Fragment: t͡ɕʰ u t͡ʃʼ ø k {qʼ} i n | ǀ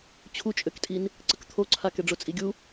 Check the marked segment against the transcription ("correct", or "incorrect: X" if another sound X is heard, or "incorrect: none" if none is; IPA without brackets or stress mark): incorrect: tʼ